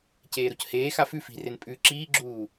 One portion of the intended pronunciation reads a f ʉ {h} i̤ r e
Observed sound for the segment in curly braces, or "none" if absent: f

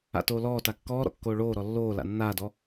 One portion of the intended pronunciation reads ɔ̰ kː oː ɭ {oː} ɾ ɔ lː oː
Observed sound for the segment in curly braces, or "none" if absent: oː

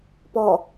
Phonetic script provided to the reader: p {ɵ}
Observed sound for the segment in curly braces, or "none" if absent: ɔ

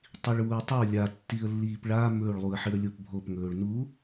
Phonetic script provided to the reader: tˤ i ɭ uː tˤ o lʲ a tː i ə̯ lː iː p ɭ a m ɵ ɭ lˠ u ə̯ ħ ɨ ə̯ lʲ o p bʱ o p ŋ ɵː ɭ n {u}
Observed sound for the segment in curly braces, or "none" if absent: u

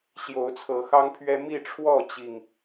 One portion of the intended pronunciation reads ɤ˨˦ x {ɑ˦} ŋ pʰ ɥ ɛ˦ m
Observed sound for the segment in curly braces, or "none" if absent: ɑ˦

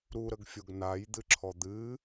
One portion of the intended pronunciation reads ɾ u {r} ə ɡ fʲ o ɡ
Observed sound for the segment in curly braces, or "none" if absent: ɾ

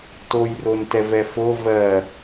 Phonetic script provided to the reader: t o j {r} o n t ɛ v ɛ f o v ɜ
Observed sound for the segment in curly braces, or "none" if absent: r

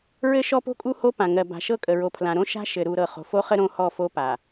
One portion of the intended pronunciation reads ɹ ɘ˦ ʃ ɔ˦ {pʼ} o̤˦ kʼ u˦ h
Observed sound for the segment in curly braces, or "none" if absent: p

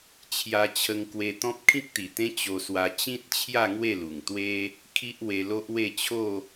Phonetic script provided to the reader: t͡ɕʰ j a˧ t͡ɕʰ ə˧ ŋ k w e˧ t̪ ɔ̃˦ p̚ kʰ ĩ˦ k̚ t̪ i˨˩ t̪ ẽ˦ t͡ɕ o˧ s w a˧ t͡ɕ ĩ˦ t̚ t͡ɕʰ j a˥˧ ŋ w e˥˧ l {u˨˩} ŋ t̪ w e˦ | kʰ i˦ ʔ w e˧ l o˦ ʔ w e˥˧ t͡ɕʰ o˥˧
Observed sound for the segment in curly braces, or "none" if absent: u˨˩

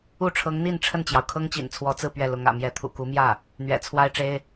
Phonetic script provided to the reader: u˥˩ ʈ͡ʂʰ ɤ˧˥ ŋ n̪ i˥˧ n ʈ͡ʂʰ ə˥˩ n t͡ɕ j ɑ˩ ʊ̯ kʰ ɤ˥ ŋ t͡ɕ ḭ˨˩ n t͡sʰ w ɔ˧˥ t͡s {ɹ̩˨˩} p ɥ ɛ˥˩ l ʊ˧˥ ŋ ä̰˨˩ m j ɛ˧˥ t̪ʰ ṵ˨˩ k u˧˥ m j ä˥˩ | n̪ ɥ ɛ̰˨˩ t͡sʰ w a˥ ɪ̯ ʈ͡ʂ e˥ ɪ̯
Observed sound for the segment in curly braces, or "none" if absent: ɹ̩˥˧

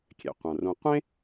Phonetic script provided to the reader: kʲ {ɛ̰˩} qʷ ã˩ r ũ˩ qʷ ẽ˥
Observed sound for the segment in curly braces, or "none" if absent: ɛ̰˩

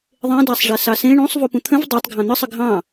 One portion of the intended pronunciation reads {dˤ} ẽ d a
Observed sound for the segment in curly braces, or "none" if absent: ðˤ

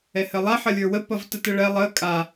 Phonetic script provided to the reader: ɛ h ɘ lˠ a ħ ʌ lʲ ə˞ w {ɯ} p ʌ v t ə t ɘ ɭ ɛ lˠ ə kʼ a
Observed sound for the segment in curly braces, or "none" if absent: ə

